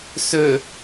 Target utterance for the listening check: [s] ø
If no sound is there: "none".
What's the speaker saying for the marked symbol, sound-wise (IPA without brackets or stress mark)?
s